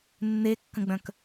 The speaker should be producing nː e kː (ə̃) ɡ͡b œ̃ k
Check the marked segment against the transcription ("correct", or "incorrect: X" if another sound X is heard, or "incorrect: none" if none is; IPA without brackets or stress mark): correct